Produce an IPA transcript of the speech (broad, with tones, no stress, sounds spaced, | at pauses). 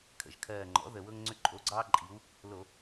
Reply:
kʰ ə̰˨˩ ʒ kʰ ɜː˨˩ ŋ͡ǃ ɔ̰˩˥ ð ə˨˩ w ɤ˦ ŋ ŋ͡ǀ ʏ˦ ǃʼ o˩˥ ɡ͡ǀ ɑː˦ ǃʼ i˩˧ w | l o˧˩˧